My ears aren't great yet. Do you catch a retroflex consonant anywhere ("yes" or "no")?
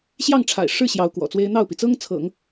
yes